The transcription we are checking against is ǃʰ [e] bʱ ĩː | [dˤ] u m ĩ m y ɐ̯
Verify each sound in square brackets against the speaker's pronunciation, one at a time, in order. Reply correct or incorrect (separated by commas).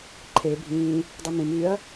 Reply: correct, correct